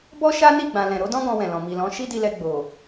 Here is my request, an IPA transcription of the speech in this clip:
b ɔ˦ ʃ a˦ n i˦˨ ɡ͡b ã˨ l ɛ̃˨ ɾ o˨˦ d ɔ̃˦ ɡ ɔ̃˧ w ɛ̃˨ l ɔ̃˨ m i˨ l ɔ̃˨˦ ʃ i˦ d i˧ l ɛ˧ ɡ͡b o˨

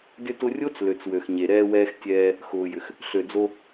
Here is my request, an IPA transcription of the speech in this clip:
d ʏ˧ t ʊ˧ rʲ o˦ t͡s l ø˨ t͡s w ø˨ x ɲ e˨ ɾ ɛː˧ w ɛː˧ x tʲ ɛː˧ | x ʊː˨ j ʏ˨ x | ɬ ø˨ d͡z o˧

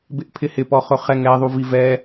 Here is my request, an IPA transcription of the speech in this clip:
b ɪ ʔ pʰ ɪ h ɪ p ɔ χ ʊ χ ɛ ŋ ɛ ðˤ u v i v ɛ

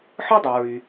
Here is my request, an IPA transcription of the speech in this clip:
ħ ɯ˥ dˤ o˨ ɹ y˨

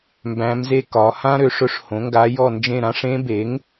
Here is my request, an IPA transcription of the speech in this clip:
m b æ̃˧˥ m z e˥ k ɒ˩˥ h ã˥ ɾ ø˩˥ ʂ ɵ˧˥ ʂ h õ˩˥ ŋ ɡ a˧˥ j ɔ˥˧ n d͡ʒ ẽ˥˧ ɾ ã˧˥ ʂ ẽ˧˥ b e˩˥ ŋ

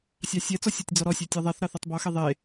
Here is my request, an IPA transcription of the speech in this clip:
sʲ ɑ sʲ ɛ t͡s ɔ sʲ ɔ tʲ d͡z ɔ ɾ ɔ sʲ ɛ tʲ ɑ ðˤ ɛ θ ɾ ɑ θ ɛ tˤ b ɔ x e ðˤ e

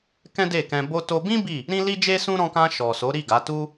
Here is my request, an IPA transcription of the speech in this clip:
k ɛ̃˦ d e˦˨ k ɛ̃˧ b o˦ t o˧ b ĩ˦ b i˦˨ | ɾ ĩ˦ l i˦ d͡ʒ e˦ s ũ˦ ɾ ɔ̃˧ k ã˧ ʃ ɔ˨ s o˨˦ ɾ i˦˨ ɡ a˨˦ t u˦

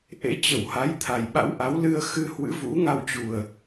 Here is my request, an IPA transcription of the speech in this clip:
ʔ ḛ˧˥ t͡ɕ ə˧˩ w h a˨˦ j t̪ʰ a˨˩ j ɓ a̰˧˥ w ʔ a˨˦ w l ɨ˧ ə̯ x ɨ˧ h w ɨ̰˧˥ v ṵ˧˥ ŋ a˧ w t͡ɕ u˨˩ ə̯

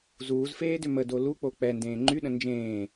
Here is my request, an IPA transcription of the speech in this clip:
z uː z f eː d ʏ m ə d o l u k͡p o k͡p ɛ n d ẽː ŋ͡ǃ y ɗ ə̃ n d͡ʒ ẽː

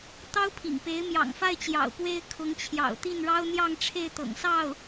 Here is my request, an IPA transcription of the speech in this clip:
t̪ ɑ˥ ʊ̯ pʰ ḭ˨˩ ŋ p e˧˥ ɪ̯ m j ɑ̰˨˩ ŋ f a˥˩ ɪ̯ t͡ɕ j ɑ̰˨˩ ʊ̯ p w e˥ ɪ̯ kʰ ʊ˧˥ ŋ t͡ɕʰ j ɑ̰˨˩ ʊ̯ t̪ i˥˩ n ɻ ɑ˥ ʊ̯ n̪ j ɑ˥˧ ŋ ʈ͡ʂʰ e˥˩ ɪ̯ t̪ ɤ̰˨˩ ŋ s ɑ˥˩ ʊ̯

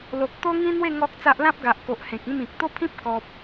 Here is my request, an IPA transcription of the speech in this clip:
l o˨ k̚ t̪ o˦ ŋ ĩ˦ n̪ w e˥˧ ŋ ɔ˦ k̚ t͡s a˦ ʔ l ã˦ p̚ ɡ a˨ ʔ k o˨ ʔ h ẽ˨ k̚ ĩ˥˧ m ĩ˨ k̚ t̪ o˦ pʰ ĩ˦ p̚ k ɔ˨ p̚

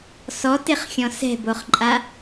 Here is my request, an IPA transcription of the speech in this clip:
s ɔ t ɪ χ xʲ ɔ̃ s ɛ̤ b o χ ǃʼ a

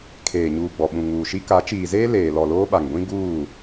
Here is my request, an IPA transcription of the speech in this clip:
kʰ eː˨ ɲ uː˨ ɡ͡b ɔ˨ ɓ ũ˨ ŋ uː˨ ʃ i˦ k a˨˦ t͡ʃ iː˨ z eː˦ l eː˨ l ɔ˨ l oː˦ ɓ a˨ ŋ ɡʷ ĩ˦ ɡ uː˦˨

